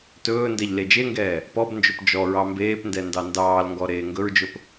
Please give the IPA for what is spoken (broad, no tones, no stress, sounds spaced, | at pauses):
t ɵː n d ɛ ʎ l e d͡ʒ e ŋ ɡ ɛː | p ɔ b n d͡ʒ ɵ p d͡ʒ ɔ ɹ ɑ m b eː p n d ɛ n d ɑ n d ɑː l ŋ ɡ ɔ ɾ eː ŋ ɡ ɵ ɹ d͡ʒ ɵ p